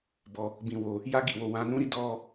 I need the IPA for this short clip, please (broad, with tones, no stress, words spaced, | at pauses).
bɔ˧ | bĩ˧wo˧ | ja˦ɡi˦˨wo˧ wã˧nũ˦ɾi˦ dɔ˦